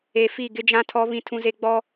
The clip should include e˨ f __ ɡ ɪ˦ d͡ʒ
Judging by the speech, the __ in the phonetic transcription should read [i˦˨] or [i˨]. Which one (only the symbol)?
i˦˨